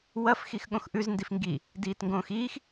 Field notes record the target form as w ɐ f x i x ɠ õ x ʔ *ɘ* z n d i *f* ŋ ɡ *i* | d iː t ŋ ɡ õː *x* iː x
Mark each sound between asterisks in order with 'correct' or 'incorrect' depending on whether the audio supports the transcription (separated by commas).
incorrect, correct, correct, correct